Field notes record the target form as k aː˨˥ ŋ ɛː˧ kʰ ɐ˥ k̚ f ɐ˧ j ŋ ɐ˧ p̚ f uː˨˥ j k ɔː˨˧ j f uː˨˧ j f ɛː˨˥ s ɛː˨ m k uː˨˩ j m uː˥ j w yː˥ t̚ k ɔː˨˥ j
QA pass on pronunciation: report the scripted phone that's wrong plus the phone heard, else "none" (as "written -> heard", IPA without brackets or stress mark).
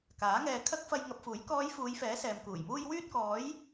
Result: none